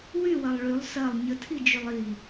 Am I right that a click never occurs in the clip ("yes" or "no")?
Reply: yes